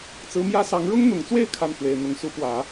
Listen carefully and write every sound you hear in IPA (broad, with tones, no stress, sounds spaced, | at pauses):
t͡s ɹ̩˧˥ m j ä˥ s ɑ˧˥ ŋ ɻ ʊ˥ ŋ n̪ ʊ˨˩ ŋ t͡s w e˥˧ ɪ̯ kʰ a˥˩ n x w e˨˩ ɪ̯ n̪ ʊ˧˥ ŋ s u˧˥ p w ä˨˩˦